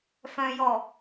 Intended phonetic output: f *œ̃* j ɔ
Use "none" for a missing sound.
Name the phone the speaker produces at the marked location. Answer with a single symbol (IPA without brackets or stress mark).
œ̃